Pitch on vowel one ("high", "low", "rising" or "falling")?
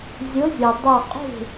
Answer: rising